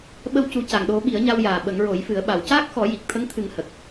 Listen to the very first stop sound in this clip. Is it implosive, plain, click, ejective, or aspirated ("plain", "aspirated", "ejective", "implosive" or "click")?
implosive